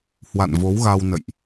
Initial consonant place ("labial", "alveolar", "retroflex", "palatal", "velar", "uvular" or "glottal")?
glottal